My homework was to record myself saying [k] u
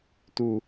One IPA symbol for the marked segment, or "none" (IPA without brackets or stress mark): t